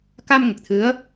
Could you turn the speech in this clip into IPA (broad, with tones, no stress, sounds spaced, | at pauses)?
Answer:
k a˧ m ŋ ə˨˩ k̚ t̪ʰ ɨ˧˥ ə̯